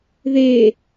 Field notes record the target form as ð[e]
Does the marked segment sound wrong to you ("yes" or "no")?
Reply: no